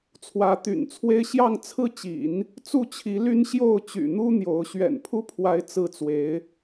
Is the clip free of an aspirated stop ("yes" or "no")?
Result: no